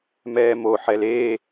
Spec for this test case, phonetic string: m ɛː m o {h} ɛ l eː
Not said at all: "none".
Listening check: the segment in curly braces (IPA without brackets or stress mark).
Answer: ħ